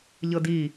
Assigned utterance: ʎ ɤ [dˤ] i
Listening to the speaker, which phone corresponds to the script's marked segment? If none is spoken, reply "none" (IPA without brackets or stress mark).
d